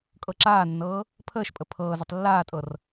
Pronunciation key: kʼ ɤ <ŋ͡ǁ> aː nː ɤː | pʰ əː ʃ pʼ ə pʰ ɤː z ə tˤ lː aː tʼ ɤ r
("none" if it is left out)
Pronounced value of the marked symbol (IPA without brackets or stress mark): ǁ